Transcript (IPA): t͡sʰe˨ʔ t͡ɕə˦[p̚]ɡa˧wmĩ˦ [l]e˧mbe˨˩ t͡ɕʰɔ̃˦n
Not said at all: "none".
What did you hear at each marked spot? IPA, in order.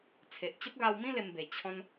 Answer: p̚, l

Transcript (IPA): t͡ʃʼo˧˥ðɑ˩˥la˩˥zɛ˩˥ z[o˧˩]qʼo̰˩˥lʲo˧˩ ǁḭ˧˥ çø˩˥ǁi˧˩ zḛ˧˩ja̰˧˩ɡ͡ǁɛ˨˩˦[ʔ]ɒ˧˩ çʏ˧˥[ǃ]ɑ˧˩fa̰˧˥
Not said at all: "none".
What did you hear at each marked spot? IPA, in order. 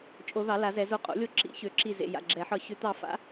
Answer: o˧˩, ħ, t̪

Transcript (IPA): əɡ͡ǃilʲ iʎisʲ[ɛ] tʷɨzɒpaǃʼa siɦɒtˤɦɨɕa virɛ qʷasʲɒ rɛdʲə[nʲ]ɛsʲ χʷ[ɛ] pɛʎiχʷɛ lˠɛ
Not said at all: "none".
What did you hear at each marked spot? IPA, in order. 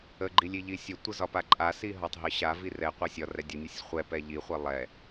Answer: ə, nʲ, ɛ

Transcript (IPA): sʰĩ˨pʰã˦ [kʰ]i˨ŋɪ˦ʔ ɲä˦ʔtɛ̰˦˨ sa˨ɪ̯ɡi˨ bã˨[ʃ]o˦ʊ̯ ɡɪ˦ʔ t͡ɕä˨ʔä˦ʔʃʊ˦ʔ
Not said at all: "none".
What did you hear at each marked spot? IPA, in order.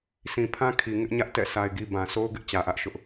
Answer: kʰ, s

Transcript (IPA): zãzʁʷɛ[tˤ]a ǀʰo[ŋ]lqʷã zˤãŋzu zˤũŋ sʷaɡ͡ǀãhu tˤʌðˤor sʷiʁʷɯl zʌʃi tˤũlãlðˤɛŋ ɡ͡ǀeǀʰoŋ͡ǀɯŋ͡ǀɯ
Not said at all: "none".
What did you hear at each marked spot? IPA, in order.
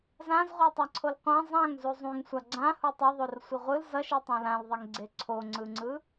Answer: tˤ, none

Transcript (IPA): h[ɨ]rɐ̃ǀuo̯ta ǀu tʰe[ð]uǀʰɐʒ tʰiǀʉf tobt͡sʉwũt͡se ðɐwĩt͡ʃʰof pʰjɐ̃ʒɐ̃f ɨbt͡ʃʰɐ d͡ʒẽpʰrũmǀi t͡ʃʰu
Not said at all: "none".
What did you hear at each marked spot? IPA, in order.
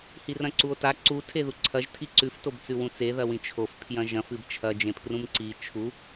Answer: i, ð

